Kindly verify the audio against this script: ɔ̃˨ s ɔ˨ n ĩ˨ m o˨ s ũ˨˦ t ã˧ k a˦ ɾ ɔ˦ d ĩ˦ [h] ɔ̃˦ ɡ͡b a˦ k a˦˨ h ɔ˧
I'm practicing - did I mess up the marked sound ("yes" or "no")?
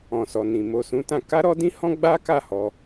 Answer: no